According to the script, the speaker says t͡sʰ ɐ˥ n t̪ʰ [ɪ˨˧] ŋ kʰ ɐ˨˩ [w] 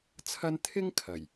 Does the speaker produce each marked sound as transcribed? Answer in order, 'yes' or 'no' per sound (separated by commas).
no, no